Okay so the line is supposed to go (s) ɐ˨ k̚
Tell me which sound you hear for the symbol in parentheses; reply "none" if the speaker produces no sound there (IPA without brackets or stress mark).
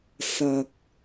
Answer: s